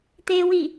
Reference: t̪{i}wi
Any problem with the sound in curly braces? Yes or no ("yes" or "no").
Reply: yes